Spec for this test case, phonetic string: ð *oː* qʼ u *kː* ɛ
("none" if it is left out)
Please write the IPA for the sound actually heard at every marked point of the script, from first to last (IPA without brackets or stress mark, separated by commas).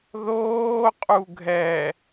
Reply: oː, ɡʱ